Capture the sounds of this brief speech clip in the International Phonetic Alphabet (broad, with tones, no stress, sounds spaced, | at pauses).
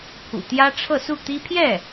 pʰ ṵ˨˩ t̪ j ä˥ ʈ͡ʂʰ ɤ˥˧ s u˥˩ t̪ i˥ pʰ j ɛ˥˩